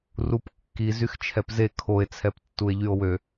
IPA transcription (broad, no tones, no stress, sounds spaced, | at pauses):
r u p kː i z y x t͡ʃʰ ɛ p z e kʰ o e̯ t͡sʰ ɛ p tː u e̯ ʎ y o̯ w ø